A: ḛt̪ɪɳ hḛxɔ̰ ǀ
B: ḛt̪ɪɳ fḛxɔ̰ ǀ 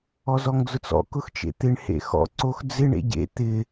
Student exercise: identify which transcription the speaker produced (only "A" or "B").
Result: A